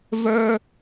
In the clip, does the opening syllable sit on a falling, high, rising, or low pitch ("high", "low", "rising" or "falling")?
high